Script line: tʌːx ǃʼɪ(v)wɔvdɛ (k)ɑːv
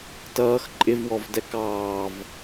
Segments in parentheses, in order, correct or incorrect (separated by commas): correct, correct